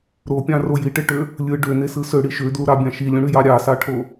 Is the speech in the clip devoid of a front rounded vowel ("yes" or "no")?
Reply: no